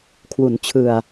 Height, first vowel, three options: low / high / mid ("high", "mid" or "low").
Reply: high